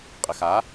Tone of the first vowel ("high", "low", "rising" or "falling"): low